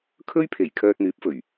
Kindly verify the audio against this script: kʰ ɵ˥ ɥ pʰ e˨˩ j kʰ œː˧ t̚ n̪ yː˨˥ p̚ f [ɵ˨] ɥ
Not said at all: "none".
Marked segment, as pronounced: ɵ˨˩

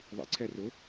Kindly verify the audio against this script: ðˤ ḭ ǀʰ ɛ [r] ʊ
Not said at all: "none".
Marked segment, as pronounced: r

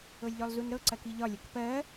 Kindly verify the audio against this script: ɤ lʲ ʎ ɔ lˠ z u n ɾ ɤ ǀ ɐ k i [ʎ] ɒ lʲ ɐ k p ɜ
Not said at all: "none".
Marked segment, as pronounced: ʎ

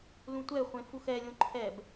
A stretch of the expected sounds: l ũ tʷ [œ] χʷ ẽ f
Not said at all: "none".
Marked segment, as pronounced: ɛ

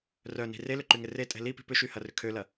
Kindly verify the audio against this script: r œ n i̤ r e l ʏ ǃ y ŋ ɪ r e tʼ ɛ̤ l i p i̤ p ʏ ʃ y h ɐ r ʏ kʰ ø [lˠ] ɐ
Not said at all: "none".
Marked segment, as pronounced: l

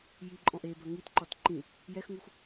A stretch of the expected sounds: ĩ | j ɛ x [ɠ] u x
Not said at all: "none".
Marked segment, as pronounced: ŋ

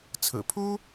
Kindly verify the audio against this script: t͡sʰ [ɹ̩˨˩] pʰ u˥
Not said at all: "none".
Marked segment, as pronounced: ɹ̩˨˩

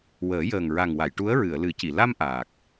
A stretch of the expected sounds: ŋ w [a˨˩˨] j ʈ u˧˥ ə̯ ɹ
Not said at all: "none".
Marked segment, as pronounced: a˨˩˨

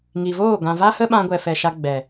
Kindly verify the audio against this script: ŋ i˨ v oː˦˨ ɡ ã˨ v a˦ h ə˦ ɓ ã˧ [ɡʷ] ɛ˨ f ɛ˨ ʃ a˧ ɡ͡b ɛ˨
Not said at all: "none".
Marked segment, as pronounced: ɡʷ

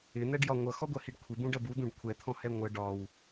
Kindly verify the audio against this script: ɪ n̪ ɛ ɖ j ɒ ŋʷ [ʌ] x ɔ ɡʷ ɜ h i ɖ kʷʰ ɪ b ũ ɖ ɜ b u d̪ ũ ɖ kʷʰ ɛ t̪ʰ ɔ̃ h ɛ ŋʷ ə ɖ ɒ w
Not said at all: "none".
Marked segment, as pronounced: ʌ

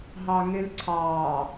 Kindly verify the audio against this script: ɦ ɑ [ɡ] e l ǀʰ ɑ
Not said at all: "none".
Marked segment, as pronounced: ŋ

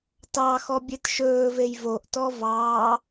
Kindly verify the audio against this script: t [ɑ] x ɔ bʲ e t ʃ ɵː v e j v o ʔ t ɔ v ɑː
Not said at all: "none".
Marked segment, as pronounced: ɑ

